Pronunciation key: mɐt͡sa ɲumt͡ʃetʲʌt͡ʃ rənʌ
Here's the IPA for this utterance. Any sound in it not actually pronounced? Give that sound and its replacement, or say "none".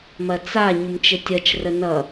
none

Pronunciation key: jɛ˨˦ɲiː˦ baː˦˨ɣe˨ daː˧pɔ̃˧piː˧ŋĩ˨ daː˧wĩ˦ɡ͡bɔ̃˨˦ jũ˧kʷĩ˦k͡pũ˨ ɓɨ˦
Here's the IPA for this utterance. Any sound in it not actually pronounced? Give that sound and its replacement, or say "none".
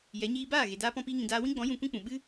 none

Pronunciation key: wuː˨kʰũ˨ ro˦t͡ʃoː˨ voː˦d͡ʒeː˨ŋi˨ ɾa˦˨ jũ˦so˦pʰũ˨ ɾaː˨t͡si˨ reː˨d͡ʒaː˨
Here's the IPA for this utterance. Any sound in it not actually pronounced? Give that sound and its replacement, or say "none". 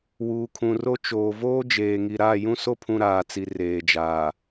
none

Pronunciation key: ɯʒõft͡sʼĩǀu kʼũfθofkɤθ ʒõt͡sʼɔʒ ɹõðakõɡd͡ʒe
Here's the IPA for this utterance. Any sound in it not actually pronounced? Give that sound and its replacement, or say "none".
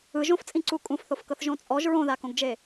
none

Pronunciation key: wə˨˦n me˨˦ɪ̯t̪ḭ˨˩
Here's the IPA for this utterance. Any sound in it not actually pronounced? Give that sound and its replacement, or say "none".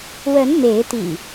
none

